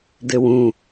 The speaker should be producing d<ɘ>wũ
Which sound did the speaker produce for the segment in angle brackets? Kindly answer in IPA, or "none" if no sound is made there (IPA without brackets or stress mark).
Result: ɘ